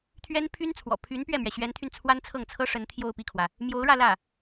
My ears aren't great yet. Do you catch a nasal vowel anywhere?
no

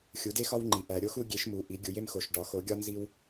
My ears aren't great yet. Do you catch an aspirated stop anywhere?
no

